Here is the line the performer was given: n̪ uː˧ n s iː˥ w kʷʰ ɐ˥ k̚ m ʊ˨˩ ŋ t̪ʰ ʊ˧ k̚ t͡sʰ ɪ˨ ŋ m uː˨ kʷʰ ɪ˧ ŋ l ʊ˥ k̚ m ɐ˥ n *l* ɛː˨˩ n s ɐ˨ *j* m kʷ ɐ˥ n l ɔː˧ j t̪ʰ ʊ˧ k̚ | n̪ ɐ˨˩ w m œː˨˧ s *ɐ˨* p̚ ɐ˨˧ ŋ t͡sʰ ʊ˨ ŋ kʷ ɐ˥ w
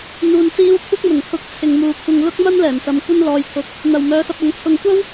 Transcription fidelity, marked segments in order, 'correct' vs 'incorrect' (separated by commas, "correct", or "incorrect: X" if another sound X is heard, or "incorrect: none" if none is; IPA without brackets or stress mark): correct, incorrect: none, incorrect: ɐ˧